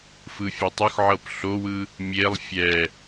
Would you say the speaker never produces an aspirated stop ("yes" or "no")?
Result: yes